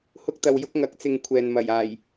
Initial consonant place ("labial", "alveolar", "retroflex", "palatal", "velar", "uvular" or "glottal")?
glottal